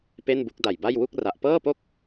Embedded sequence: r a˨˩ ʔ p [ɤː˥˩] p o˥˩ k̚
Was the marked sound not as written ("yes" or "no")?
no